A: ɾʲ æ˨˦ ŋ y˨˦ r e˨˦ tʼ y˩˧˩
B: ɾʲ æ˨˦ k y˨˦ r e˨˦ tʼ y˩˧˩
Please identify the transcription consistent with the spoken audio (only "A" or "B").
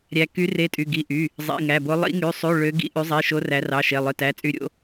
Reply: B